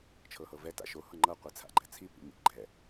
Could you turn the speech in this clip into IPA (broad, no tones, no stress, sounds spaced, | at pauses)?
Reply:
t͡ʃʰ ɤ h ɤ v ɛ t a̰ ʃ o h ɤ ŋ͡ǃ ɤ qʷ i t͡sʰ a̰ ɡ͡ǃ ɛ t͡sʰ i p ḭ m ḭ ɡ͡ǃ ɛ